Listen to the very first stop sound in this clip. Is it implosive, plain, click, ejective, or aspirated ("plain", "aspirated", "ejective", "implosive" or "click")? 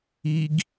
plain